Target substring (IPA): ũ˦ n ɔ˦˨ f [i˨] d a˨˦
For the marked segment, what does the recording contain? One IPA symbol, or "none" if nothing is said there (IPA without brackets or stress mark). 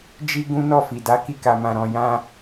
i˨